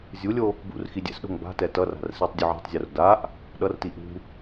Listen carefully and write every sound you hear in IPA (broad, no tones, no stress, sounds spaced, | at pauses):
zʲ u lʲ o | b ṵ r x i dʲ ɛ̰ s ɗ o̤ ŋ b a̤ t ɛ t ʌ r a̤ r s i tˤ dʲ u ʕ a̤ tˤ zʲ o r d a ʔ | ɗ ʌ r t i ʔ ṳ